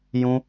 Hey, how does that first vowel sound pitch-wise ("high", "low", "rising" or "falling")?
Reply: high